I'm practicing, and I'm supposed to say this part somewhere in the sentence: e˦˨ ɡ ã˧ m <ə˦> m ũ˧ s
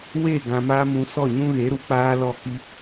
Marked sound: incorrect: a˦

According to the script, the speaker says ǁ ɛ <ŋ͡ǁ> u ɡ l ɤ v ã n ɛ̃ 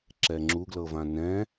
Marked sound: correct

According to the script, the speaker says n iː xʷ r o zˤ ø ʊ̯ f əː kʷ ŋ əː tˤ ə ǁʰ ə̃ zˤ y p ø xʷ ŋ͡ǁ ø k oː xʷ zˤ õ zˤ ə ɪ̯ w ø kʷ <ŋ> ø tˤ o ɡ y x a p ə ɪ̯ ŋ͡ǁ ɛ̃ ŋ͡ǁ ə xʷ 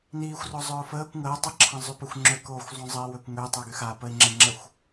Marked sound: correct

